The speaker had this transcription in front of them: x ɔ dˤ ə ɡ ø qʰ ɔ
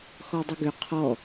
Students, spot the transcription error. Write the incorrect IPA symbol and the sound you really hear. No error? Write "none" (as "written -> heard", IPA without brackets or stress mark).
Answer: none